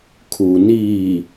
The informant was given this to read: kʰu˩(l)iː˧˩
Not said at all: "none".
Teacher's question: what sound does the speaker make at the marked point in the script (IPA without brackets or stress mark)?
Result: n